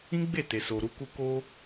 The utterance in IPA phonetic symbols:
ĩ˦ɡ͡be˦˨ te˨so˨ɾu˧ku˧ ko˧

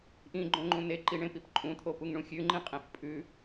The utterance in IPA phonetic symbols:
ʔĩɡ͡ǃõŋ͡ǃũ neǃiɳẽpip ǃʼũt̪ʰopuŋɳũ xʲʉŋ͡ǃĩqʼẽf pʼʉ

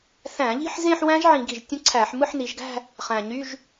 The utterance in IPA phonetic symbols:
θæ̃˧˩˧ʎi̤˥˧ħ zẽ˥˧ħwæ̃˦˥ʒ ʕĩ˧˩˧ɡi˨˩ʒtʲũ˦˥ǀʰæ˧˩˧ħ mɯ˥˧ħni˩˧ʒɡæ̤˥˧ | χæ̃˨˩ɲy˧˥˧ʒ

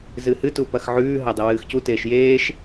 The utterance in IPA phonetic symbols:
zɨhɨtu pɐxʕʉːɦɐ dˤiwɨːxcuteːʃ jeːʃ

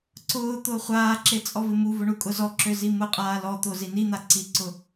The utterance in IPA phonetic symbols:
ǀʊː t̪ʊːχʷaːǁe t͡sʼɔvɪmuvʊ ɳukʼʊzɔǁø zimʊqʼaː lɔt̪o zinin̪a ǀiǀʊ

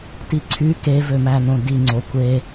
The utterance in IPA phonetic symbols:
tiǀʰy kevømænõ diŋ͡ǀo kʷe

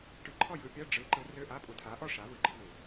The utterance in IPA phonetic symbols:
ʈɯ˧ǃʰɔ˥˨jɯ˧pʲɐ˧˥˧ ɖ͡ʐɯ˨˥ ǃɯ˨˥rø˧˥˧ʔa˧˥˧ pʼu˧tʰa˨˥ʔɔ˥˨ ʂa˨˥vɯ˨˩ɡ͡ǃɯ˨˥ vu˨˩

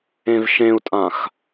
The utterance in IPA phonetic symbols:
ẽvʃẽu̯tʼãx

